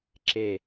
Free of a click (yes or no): no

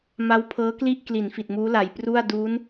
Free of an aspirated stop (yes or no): no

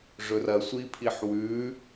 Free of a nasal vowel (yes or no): yes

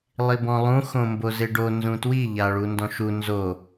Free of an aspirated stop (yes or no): yes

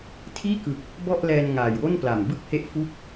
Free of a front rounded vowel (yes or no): yes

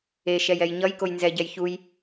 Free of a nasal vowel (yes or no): yes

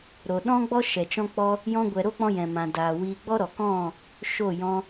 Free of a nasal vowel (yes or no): no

